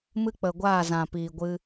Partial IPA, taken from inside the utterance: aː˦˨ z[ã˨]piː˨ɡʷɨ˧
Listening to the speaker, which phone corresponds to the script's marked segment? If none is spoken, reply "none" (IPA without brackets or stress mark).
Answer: ã˨